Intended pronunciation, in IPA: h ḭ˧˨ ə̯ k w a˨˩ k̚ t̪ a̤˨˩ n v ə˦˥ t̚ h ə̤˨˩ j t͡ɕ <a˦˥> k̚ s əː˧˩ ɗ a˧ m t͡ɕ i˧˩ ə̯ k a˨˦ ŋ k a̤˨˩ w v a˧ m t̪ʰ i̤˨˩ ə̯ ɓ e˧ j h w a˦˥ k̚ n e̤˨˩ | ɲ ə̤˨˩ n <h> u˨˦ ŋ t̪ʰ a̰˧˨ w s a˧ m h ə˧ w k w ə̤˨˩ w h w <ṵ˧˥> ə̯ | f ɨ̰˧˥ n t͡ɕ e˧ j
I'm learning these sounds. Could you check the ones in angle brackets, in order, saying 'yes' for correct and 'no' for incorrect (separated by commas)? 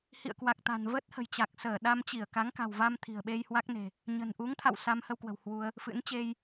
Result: no, no, no